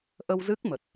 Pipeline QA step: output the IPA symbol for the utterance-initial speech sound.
ʔ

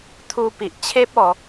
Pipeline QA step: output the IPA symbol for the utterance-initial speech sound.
t̪ʰ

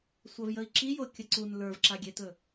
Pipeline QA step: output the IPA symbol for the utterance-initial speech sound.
sʷ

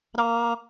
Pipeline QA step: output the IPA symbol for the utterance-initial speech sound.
ɾ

